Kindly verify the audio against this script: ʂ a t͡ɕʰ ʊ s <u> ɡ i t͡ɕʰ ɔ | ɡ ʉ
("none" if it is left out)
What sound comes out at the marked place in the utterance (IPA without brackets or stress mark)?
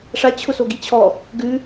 o